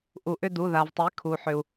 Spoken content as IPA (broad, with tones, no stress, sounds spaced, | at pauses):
ʔ u˩ ʔ ʏ˥˧ d u˩˧˩ ð a˩ v tˤ i˩˥ kʰ u˩ ħ ʏ˩ u̯